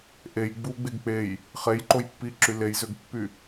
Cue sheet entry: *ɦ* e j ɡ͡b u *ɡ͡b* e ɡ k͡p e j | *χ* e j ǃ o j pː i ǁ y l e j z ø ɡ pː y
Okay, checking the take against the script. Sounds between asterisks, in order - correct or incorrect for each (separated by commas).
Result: incorrect, correct, correct